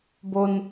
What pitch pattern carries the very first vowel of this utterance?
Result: high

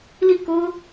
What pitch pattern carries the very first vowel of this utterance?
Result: falling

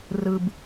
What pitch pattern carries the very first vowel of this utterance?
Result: low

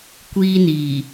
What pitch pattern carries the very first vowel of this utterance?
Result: high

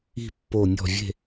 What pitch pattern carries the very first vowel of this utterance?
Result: falling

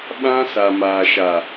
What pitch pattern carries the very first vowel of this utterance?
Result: high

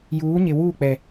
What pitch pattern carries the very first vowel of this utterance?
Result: rising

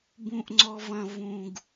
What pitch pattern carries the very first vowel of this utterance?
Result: low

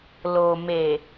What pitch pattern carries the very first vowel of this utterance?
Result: low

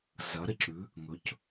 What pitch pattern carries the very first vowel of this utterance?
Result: rising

